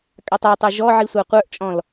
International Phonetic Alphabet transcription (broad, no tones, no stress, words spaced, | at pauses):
kʼatˤə˞tˤə˞ ʒɔ ʕisʷaqʷə˞ʔt͡ʃʼɔ̃l